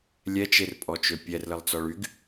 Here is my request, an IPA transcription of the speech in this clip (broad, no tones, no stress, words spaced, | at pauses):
lʲɛt͡ʃerpʼɔt͡ʃø pʲɛrləlˠt͡sɔɭ yɡ